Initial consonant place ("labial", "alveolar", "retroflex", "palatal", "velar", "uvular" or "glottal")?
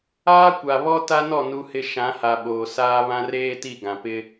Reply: velar